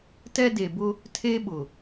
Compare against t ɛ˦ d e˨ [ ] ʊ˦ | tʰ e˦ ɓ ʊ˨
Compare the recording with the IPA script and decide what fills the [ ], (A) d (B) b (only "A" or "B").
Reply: B